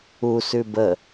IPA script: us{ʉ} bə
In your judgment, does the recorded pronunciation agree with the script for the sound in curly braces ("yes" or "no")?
yes